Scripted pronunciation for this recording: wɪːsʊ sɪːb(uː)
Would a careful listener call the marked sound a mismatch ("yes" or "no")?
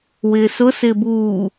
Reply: no